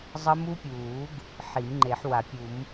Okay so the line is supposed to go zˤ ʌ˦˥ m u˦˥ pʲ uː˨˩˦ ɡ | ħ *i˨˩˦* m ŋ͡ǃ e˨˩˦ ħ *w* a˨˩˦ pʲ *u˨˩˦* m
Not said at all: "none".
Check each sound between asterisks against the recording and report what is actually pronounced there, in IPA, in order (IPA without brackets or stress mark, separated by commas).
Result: i˨˩˦, w, u˨˩˦